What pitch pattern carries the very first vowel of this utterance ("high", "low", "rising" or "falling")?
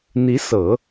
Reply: rising